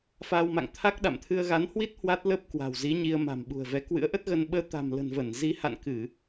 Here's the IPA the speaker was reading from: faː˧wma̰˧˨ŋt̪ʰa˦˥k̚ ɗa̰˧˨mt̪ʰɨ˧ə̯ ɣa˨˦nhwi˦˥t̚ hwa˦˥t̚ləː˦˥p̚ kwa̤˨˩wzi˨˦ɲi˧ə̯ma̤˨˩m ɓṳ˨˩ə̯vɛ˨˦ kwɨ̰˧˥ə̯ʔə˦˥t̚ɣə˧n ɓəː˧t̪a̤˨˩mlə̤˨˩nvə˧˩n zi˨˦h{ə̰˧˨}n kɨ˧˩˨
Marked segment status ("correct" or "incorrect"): incorrect